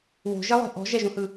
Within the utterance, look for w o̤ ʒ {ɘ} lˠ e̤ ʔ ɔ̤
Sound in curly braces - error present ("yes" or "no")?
yes